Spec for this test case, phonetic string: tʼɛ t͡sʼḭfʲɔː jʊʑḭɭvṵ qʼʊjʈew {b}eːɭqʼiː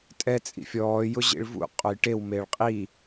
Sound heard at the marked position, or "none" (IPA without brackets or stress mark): m